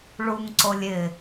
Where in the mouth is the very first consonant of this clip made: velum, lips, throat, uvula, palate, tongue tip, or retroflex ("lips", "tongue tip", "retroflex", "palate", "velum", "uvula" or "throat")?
retroflex